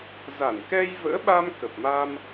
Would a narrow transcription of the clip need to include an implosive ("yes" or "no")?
yes